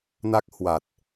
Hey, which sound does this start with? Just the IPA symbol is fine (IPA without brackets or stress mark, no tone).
n